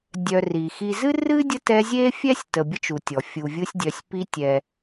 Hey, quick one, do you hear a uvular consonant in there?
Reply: no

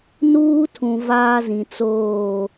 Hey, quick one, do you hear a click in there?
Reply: no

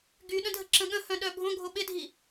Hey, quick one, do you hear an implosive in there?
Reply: yes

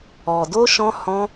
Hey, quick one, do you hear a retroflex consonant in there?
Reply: no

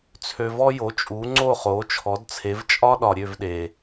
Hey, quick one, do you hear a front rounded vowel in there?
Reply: yes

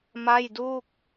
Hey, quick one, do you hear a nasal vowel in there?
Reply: no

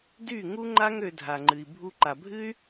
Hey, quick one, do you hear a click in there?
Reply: yes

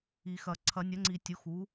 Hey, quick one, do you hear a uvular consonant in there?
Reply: no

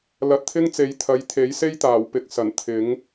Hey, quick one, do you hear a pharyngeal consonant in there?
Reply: no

